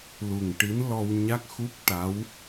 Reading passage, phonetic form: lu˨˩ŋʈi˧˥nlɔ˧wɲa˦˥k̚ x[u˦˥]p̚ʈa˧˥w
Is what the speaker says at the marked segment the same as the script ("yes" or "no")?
yes